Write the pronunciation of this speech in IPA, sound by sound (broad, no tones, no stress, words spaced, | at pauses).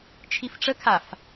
t͡ʃʰifʈ͡ʂəkʰaf